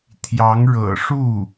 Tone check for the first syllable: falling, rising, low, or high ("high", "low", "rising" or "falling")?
rising